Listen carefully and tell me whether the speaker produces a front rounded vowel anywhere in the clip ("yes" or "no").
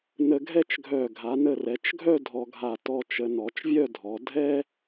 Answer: yes